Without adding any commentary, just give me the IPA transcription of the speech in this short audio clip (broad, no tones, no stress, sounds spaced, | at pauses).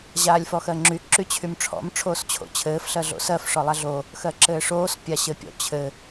ʑ aː lʲ f ɔ x ɜ ŋ͡ǁ y ǁ y t͡ɕʰ y m ʈ͡ʂʰ ɔ̰ m ʈ͡ʂʰ oː s t͡ɕʰ o̰ t͡ɕʰ ɘː f ɬ ɜ ɮ o̰ s ɜ f ʂ ɔ lˠ a ɮ o | x ɜ ǁ ɘː ʂ oː s pʲ a ɕ ɘ pʲ ɔ̰ t͡ɕʰ ɘ